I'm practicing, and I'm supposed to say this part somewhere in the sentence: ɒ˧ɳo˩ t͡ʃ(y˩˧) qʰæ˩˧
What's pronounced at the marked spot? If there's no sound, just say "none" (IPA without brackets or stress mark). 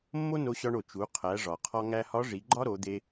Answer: u˩˧